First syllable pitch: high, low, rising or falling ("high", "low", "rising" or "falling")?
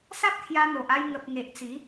high